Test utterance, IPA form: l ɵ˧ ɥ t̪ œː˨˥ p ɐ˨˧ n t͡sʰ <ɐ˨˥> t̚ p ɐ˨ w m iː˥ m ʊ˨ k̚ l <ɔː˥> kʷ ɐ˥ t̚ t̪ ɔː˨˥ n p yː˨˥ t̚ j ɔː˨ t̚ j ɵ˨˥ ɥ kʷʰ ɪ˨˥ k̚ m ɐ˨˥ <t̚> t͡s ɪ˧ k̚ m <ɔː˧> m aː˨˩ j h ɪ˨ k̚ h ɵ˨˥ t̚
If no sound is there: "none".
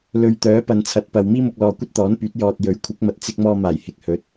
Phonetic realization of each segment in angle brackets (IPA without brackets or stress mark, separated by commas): ɐ˨˥, ɔː˨, t̚, ɔː˧